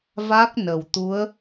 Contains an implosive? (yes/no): no